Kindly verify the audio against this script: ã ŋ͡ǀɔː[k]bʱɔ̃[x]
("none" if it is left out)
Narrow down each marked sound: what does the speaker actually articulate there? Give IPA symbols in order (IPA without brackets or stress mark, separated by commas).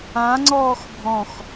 x, x